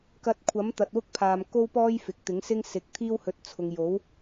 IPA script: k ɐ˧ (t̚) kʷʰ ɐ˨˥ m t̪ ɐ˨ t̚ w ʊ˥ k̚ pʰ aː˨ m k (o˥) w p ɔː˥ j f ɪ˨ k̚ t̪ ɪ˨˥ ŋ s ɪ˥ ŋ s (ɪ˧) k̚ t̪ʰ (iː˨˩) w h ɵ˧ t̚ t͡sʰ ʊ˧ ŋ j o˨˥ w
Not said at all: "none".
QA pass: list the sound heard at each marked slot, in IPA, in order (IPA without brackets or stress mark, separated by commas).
t̚, o˥, ɪ˨˥, iː˥